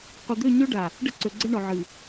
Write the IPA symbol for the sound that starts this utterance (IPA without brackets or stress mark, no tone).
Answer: qʷ